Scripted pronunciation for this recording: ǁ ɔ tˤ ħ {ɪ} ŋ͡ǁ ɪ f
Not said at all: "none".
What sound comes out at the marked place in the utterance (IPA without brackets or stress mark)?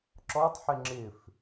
ɪ